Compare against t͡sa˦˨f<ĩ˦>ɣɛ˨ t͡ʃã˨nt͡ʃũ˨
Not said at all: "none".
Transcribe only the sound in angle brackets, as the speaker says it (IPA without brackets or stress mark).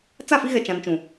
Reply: i˦